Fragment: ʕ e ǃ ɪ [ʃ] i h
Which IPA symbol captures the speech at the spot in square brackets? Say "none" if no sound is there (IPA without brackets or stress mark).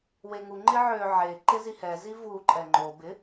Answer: z